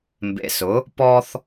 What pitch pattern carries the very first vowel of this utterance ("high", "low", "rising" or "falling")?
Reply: low